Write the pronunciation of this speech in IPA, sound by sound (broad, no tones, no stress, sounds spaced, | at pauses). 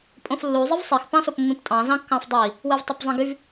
pʼ õ f lː u zˤ ɯ v sˤ i x p ɑ̃ s o p mː ĩ p tʼ ɑ̃ z ɑ̃ kː ɑ̃ f dˤ i | w ɯ v tˤ e p zˤ ĩ ɡ y v